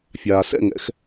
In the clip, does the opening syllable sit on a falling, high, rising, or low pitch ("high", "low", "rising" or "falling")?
low